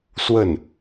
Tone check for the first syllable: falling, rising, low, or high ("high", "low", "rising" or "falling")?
falling